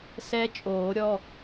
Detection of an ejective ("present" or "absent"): present